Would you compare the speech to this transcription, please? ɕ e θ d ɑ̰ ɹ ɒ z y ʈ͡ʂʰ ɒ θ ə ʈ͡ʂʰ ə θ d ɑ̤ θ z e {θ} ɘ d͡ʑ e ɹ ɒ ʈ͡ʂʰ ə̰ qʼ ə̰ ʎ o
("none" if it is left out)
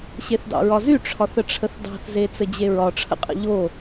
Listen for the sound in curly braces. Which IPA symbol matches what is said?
t͡s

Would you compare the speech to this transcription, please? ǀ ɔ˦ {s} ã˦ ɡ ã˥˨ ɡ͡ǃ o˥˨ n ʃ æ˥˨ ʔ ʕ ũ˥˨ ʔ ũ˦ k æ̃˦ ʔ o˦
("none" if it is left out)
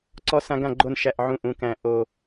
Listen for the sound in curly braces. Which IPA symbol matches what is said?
s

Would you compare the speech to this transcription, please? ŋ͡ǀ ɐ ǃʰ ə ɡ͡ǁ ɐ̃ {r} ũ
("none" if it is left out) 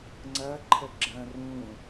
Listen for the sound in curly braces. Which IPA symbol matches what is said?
r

